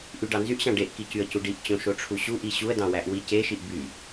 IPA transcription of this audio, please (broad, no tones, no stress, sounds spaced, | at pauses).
ʔ y ɖ ɑ n z y ʔ ɕ ɑ̃ ɖ e ʔ k i c y ə̯ c u ɖ i ʔ t͡ɕ õ ʃ o ʈ͡ʂʰ u ɕ u ʔ i ɕ u ə̯ d ɑ̃ w æ ʔ w i c e ʃ i ʔ b y